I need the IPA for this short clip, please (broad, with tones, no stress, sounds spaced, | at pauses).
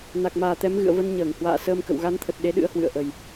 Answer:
n a˨˩ k̚ m aː˨˩ t̪ ɛ˨˦ m ɣ ɨ̰˧˨ ə̯ v ə˧ n ɲ əː˧˩ ŋ h w a̰ː˧˨ s əː˧ m k ə̰˧˨ w ɣ a˨˦ n t̪ʰ ə˨˩ t̚ ɗ e˨˦ ɗ ɨ̰˧˥ ə̯ h w ɨ̰˧˨ ə̯ ʔ ə˨˩ j